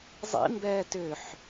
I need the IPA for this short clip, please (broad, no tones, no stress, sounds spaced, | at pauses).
zˤ ḭ m b ɛː t ʏː ħ